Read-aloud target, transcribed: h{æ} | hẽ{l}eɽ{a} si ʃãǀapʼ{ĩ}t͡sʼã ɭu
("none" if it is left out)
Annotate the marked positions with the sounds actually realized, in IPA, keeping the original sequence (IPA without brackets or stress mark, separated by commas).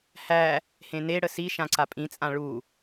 æ, n, ə, ĩ